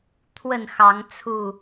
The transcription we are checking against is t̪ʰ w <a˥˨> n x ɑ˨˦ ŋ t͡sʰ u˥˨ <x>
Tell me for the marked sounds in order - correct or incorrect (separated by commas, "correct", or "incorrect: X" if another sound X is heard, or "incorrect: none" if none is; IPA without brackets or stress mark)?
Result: incorrect: ə˥˨, incorrect: none